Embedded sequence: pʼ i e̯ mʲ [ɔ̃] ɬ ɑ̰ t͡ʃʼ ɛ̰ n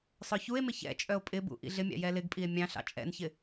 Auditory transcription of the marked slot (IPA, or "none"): ɑ̃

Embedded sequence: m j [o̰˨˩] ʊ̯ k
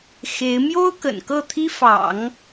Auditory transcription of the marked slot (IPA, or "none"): o˥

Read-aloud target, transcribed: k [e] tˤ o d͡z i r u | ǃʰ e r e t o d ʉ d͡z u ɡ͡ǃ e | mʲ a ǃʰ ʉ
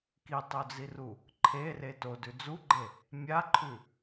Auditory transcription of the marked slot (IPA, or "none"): i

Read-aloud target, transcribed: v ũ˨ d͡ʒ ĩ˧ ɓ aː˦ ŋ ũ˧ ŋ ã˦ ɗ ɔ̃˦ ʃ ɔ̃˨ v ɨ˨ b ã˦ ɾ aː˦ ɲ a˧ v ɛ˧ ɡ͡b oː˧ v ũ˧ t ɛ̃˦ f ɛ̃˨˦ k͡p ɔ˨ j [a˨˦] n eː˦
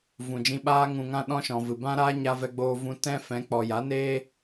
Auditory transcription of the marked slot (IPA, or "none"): a˨˦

